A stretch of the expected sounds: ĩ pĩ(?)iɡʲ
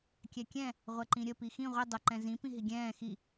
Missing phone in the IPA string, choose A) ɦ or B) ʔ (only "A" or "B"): A